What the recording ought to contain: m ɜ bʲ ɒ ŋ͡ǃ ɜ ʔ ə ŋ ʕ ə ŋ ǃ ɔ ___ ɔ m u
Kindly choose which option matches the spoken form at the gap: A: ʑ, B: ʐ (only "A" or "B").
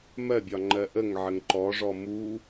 B